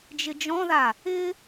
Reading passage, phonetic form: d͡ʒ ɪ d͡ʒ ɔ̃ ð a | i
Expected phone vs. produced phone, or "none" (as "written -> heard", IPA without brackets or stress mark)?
i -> ɪ